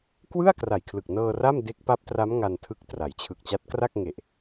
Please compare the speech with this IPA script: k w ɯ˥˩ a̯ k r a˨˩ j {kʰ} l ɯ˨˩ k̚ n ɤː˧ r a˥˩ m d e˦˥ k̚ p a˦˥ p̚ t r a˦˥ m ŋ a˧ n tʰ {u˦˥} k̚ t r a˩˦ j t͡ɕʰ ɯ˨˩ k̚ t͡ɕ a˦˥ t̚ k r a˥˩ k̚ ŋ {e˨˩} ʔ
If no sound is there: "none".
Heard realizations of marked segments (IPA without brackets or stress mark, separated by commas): kʰ, ɯ˦˥, e˨˩